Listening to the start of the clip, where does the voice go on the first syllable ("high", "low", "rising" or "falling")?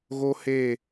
high